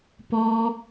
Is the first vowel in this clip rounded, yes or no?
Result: yes